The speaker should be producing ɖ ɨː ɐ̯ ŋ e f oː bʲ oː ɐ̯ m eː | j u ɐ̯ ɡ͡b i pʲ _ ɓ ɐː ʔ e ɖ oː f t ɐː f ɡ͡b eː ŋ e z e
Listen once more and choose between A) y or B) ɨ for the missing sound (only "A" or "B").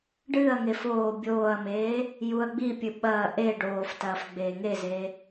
B